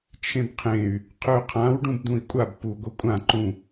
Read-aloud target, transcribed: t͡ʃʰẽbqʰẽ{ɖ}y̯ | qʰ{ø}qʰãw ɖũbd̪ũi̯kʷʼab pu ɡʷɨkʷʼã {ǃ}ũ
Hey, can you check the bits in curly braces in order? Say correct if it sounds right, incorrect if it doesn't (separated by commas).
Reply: incorrect, correct, correct